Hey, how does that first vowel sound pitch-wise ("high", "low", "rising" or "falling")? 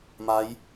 rising